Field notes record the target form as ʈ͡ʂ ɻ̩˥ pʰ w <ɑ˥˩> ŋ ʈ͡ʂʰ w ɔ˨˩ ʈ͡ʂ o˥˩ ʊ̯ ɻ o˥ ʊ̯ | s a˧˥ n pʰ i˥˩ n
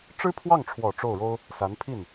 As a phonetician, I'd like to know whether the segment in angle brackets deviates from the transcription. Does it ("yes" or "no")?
no